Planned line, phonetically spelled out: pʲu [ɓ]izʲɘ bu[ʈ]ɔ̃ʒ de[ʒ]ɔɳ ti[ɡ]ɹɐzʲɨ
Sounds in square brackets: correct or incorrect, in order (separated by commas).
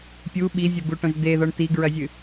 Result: correct, correct, incorrect, correct